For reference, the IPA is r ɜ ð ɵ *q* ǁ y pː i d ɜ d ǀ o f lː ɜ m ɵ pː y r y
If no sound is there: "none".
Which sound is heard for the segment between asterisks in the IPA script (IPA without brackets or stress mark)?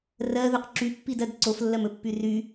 q